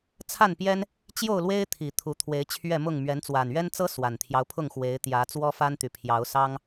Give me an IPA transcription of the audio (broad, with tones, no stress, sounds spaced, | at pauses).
t͡sʰ a˥˨ n p j ɛ˦ n | t͡ɕ j o˥˨ ʊ̯ l w e˦ ɪ̯ t̪ʰ i˨˩ t̪ʰ u˨˦ t̪ʰ w e˨˦ ɪ̯ t͡ɕʰ ɥ ɛ˥˨ m ʊ˥˨ ŋ m ɥ ɛ˨˦ n t͡s w a˨˩ n ɥ ɛ˦ n t͡s ɤ˦ s w a˨˩ n t̪ʰ j ɑ˦ ʊ̯ pʰ ʊ˥˨ ŋ x w e˨˦ ɪ̯ t̪ j ä˨˦ t͡s w ɔ˦ f a˦ n t̪ y˨˩ pʰ j ɑ˨˦ ʊ̯ s ɑ˦ ŋ